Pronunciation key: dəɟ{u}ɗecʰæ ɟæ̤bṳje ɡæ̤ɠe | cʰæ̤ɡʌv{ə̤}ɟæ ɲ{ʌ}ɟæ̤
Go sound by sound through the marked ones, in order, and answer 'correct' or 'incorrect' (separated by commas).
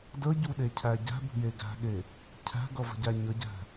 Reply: correct, correct, incorrect